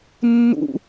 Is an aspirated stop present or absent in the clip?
absent